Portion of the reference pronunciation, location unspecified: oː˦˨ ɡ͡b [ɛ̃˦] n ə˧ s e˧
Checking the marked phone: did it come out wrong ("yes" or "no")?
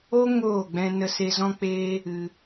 yes